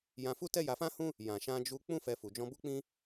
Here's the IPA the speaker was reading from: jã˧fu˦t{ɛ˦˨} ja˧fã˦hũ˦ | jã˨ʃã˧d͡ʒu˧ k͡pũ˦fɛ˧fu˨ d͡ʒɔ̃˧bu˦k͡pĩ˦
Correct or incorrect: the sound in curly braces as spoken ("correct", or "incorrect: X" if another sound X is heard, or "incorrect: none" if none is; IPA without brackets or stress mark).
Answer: incorrect: ɛ˦